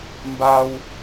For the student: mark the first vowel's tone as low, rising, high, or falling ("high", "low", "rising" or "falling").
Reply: high